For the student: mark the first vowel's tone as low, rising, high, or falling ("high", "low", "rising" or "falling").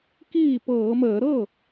falling